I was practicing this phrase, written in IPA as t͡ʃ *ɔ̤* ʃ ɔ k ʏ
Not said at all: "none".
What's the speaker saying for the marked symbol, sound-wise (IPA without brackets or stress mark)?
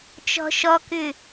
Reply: ɔ̤